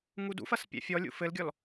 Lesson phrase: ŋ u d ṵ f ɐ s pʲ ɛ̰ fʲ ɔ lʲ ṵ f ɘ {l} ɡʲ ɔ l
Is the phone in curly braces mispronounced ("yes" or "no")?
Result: no